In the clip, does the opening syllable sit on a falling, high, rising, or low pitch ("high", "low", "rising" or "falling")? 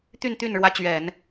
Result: falling